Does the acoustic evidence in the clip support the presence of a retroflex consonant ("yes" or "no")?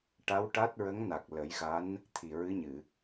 yes